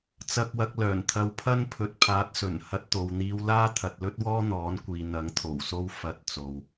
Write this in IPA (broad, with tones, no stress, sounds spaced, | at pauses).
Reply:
t͡s ɐ˧ k̚ w ɐ˧ k̚ l œː˨˩ n t̪ʰ ɐ˧ w pʰ ɐ˥ n pʰ ɵ˨˥ t̚ pʰ aː˨˥ t̚ s ɵ˨˩ n h ɐ˧ t̚ t̪ o˨ w n̪ iː˧ w l aː˥ t̪ʰ ɐ˨ t̚ l ɵ˥ t̚ w ɔː˥ n̪ ɔː˨˥ n kʷ iː˨ n̪ ɐ˨˥ ŋ t̪ʰ o˨˩ w s o˥ w f ɐ˧ t̚ t͡s o˨ w